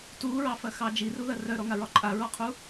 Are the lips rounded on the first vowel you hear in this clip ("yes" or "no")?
yes